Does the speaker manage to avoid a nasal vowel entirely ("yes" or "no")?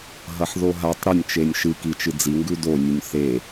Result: yes